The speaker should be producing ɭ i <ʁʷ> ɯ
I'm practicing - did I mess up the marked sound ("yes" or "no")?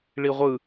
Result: no